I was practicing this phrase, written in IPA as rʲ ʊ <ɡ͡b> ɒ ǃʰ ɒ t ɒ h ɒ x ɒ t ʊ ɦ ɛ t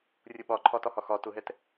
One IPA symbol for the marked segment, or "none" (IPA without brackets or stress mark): ɓ